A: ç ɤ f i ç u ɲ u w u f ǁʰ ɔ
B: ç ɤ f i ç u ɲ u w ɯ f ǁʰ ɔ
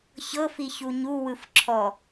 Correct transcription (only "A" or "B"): B